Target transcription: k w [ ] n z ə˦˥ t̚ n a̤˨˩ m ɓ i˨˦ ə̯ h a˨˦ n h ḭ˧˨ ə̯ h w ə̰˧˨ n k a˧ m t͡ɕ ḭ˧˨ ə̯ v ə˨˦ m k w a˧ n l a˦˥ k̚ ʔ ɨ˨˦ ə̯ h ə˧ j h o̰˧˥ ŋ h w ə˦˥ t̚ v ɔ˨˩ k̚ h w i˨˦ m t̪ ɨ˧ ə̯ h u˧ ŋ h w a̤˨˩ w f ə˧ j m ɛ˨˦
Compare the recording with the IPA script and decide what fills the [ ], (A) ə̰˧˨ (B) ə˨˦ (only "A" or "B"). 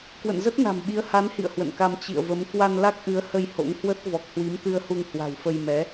A